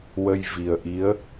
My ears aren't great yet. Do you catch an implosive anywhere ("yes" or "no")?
no